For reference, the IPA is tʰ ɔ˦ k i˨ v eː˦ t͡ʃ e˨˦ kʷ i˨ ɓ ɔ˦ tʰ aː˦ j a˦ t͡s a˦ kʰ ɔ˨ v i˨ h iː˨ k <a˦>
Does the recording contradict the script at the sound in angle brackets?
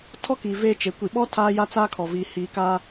no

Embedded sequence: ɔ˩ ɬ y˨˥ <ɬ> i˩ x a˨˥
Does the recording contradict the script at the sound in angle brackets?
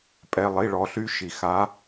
yes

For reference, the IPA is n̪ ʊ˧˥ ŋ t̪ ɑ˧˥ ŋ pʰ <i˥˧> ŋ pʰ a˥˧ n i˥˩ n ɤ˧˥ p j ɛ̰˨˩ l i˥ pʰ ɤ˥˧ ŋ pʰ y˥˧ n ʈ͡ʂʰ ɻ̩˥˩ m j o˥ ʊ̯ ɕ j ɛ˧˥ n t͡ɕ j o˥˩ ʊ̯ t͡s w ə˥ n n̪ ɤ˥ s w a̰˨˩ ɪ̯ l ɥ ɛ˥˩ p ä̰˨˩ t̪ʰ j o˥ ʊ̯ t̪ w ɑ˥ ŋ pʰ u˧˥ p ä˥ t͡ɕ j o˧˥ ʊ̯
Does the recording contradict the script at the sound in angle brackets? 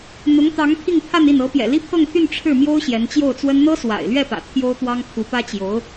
no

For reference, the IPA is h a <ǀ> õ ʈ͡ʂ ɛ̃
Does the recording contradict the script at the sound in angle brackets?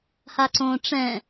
no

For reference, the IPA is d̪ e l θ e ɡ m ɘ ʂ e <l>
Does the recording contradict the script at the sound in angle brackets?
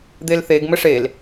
no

